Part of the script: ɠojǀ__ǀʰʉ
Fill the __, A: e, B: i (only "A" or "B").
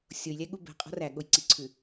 B